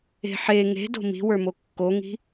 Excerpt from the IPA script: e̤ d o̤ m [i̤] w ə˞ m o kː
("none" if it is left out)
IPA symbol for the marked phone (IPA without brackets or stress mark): i̤